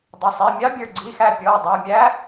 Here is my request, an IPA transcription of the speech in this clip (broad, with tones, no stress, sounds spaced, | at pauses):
dˤ ə˩˧˩ sˤ i˩˧˩ mʲ ɑ˧˥ bʲ ə˞˧˩ ɡ͡ǀ i˩˧˩ x æ˧˩ pʲ ɔ˩˧˩ w dˤ æ˩˧˩ mʲ æ˧˥